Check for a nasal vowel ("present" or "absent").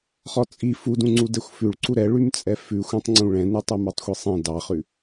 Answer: present